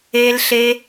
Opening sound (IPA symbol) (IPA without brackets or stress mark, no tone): e